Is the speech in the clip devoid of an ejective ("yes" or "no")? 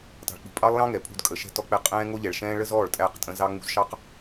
no